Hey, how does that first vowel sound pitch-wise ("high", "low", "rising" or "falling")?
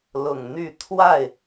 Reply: low